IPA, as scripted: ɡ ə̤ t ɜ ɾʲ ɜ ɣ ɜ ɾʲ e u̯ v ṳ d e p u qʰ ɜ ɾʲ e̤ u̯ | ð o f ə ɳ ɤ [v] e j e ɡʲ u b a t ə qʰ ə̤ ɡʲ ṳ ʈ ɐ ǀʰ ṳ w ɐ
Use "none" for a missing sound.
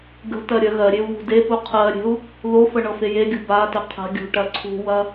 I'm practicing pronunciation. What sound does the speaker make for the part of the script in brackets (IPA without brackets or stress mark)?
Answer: f